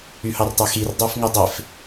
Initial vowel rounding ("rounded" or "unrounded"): rounded